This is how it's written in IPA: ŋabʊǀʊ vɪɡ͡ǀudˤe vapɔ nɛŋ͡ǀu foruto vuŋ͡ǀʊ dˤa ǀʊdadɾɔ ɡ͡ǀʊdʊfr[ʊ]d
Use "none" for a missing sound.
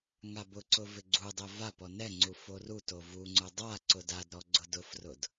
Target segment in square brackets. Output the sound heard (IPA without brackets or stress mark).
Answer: ʊ